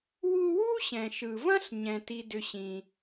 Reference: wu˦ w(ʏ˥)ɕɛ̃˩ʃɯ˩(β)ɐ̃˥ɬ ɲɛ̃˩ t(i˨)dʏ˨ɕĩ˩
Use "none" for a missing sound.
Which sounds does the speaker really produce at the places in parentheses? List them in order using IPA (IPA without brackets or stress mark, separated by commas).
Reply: u˥, v, i˨